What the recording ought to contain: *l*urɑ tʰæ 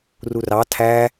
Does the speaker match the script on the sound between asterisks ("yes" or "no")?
no